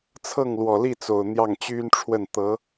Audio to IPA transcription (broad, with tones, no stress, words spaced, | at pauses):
t͡sʰɤ˥˩ŋlwɔ˨˩li˥˩t͡so˨˩ʊ̯ n̪jɑ˥˩ŋt͡ɕy˥nʈ͡ʂʰwə˥˩n t̪ɤ˧˥